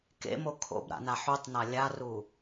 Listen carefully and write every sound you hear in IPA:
k ḛ m o kʰ o̰ b ɾ a̰ n a ħ u tˤ n a lʲ a r u

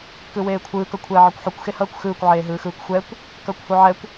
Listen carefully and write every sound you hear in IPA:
k ɯ w eː kʷʰ ɯː k ʌ kʷʰ ɛː ʕ ɯ kʷ ħ u kʷ x e h ʌː kʷ x ɯː kʷ ʕ eː ɦ ɯː x ɯː kʷ xʷ ɛ kʷ | k ʌː kʷ h u ʕ ɛ kʷ

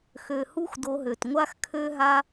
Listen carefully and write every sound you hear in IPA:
x ø˨ h u˦ x d o˧ ɦ ø˨ t ŋʷ a˧ x kʰ ø˧ ɦ a˧

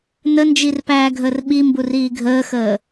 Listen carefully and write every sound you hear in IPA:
n ə n d͡ʒ i r p æː ɡʱ əː r ɓ i m b u r iː ɡʱ əː x əː

